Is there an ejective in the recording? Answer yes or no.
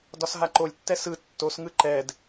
no